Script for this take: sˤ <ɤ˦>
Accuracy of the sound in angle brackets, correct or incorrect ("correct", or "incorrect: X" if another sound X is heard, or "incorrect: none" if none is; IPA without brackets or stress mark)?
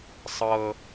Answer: correct